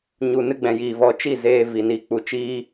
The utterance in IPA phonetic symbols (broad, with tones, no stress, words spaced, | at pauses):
ɲu˨nɨ˧ɡ͡bɛ̃˨ jiː˨vɔ˧t͡ʃi˦˨ zeː˧vi˨ni˧ k͡pu˨t͡ʃiː˦